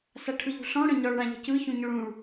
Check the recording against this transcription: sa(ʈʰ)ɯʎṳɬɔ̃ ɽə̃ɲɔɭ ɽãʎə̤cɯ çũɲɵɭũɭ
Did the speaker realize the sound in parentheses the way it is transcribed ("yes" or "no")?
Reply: yes